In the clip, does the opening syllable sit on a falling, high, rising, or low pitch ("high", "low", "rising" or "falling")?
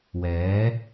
rising